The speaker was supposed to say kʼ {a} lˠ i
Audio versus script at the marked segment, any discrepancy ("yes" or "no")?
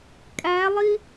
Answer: yes